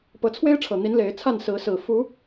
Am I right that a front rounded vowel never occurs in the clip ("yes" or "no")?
yes